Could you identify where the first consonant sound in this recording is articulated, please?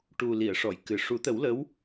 retroflex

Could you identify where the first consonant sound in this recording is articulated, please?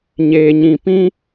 palatal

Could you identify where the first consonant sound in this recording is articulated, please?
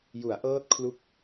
palatal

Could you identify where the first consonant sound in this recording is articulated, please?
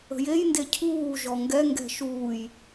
palatal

